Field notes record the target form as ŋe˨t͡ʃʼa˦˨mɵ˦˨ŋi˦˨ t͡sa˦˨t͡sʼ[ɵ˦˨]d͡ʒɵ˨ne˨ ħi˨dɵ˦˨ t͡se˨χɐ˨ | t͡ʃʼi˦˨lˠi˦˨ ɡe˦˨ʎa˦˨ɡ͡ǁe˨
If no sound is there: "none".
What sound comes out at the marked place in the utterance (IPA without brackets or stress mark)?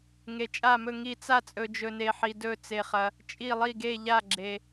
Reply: ɵ˨